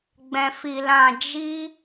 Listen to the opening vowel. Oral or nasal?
nasal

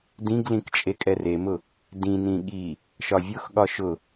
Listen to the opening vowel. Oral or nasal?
nasal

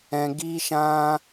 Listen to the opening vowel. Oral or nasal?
nasal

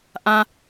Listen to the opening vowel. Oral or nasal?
nasal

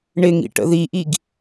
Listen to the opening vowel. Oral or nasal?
oral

